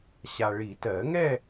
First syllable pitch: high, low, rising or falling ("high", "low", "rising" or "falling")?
low